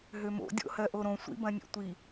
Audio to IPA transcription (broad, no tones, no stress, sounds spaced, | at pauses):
ɦ ø m o̰ dʲ o̰ h ɜ ʔ o ɾ õ sʷ ḭ b ɐ̃ nʲ ḛ tʷ i